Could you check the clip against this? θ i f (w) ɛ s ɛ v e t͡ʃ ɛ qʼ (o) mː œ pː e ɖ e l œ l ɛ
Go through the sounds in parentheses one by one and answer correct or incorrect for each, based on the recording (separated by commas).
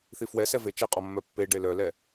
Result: correct, incorrect